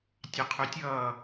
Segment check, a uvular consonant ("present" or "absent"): present